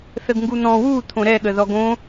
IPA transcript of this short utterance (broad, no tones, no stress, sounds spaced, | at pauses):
θ ə ɡ ŋ ɡ u n̪ ɔ̃ w u t̪ʰ õ ɾ ɛ ɠ ə ð ɔ ɡ õ